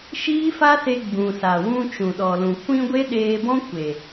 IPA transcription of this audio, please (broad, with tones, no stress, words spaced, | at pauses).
ʃiː˦fa˦se˧ ɡ͡bũ˨sa˨wũ˧ t͡ʃũ˨ɗɔ˨lũ˨ kʷĩ˧ ɡʷe˦ɗeː˧bɔ̃˦ kʷe˨